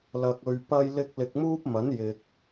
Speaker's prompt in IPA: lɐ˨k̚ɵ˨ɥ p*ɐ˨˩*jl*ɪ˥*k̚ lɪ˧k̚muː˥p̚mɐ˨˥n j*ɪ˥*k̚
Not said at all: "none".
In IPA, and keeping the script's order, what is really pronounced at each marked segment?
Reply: ɐ˧, ɪ˧, ɪ˨

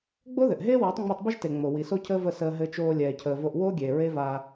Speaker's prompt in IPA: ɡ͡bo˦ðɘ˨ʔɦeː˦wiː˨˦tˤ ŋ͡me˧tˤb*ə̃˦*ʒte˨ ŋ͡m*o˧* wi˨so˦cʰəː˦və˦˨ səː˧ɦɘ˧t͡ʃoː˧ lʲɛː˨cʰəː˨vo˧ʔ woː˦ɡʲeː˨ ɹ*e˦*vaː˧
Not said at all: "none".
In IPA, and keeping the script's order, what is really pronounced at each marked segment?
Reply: ə˦, o˨, e˦

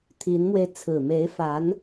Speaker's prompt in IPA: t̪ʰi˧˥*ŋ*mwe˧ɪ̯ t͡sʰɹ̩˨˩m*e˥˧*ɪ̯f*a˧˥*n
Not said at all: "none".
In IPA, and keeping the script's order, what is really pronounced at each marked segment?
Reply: n, e˧˥, a˧˥

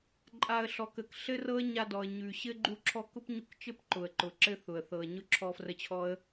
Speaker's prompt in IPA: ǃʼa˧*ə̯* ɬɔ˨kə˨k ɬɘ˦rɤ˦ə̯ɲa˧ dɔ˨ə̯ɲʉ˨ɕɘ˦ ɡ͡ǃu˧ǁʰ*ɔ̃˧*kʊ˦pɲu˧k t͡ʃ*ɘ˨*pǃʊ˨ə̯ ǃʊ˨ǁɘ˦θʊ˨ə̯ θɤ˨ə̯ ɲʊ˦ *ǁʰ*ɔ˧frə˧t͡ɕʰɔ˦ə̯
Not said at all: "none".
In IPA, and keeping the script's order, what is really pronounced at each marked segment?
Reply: ə̯, ɔ˧, ɘ˦, ǁʰ

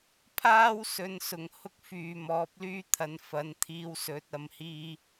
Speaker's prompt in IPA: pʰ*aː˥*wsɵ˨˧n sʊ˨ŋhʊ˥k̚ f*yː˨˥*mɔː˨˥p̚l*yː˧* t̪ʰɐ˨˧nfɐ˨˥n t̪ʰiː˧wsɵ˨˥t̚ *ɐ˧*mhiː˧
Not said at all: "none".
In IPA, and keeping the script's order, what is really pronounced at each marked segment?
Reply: aː˥, yː˨, yː˥, ɐ˨

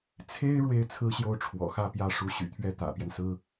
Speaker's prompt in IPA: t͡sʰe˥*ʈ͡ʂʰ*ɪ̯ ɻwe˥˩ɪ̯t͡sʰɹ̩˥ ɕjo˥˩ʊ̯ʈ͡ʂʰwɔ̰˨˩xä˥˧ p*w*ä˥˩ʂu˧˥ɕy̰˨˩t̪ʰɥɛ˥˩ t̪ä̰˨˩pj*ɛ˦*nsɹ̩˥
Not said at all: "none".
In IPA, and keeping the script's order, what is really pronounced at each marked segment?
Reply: none, j, ɛ˦

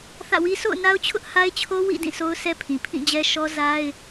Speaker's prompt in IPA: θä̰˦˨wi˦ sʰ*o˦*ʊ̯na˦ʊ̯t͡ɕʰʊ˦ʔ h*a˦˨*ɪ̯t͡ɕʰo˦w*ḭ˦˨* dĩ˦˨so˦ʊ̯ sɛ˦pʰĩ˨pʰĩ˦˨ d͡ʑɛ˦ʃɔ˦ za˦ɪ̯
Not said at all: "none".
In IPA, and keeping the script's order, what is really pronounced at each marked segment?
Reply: o̰˦˨, a˦, ḭ˦˨

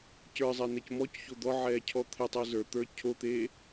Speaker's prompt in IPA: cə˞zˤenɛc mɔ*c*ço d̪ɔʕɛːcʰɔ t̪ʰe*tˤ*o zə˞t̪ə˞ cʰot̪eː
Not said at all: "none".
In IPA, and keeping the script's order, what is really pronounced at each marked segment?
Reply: c, tˤ

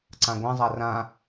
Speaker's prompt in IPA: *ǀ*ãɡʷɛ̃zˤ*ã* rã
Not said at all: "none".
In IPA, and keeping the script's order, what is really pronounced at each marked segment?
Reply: ǀ, a

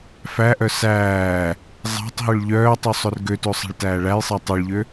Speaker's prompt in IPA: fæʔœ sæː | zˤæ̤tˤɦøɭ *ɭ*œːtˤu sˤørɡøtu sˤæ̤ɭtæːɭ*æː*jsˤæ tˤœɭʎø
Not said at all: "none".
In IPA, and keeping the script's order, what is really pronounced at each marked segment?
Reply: ʎ, æ

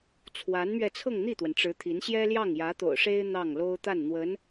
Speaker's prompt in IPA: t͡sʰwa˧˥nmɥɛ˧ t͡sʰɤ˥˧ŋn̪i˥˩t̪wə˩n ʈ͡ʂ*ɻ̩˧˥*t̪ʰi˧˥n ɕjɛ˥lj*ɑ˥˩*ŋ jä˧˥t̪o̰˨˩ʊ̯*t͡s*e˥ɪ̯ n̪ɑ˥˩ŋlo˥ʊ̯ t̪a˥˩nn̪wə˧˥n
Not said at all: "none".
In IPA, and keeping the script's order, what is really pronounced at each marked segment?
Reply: ɻ̩˧˥, ɑ˥˩, ʂ

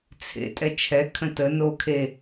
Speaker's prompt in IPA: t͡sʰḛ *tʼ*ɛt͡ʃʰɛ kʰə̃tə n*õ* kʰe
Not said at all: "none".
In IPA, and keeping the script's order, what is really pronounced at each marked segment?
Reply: tʼ, o

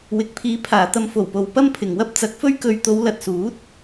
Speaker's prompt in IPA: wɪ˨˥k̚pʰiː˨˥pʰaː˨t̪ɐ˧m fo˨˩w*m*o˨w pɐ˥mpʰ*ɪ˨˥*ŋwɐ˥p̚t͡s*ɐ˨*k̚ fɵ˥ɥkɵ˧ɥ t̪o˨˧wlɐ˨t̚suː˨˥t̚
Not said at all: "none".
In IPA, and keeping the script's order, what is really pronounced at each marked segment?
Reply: p, ɪ˨, ɐ˨˥

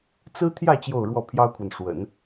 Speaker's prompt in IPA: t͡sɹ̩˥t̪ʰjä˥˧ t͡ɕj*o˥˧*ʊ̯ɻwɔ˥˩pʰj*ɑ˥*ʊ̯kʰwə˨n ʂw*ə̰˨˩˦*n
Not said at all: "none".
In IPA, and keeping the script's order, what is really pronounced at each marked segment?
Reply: o˥˧, ɑ˥, ə̰˨˩˦

